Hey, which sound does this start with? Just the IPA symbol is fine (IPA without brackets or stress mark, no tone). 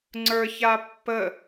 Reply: ŋ͡ǀ